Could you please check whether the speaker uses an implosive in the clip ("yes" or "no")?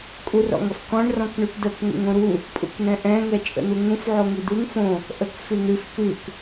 no